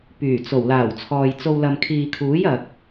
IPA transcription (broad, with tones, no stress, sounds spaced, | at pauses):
p yː˨˩ t͡s o˨˩ w l aː˨˩ w t͡sʰ ɔː˨ j t͡s o˧ w l ɐ˨ m kʰ iː˨ kʰ uː˨˥ j ɐ˨ k̚